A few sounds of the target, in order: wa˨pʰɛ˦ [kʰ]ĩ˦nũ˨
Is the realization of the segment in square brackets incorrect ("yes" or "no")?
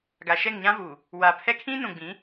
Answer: no